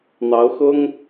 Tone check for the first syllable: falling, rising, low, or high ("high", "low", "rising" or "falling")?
rising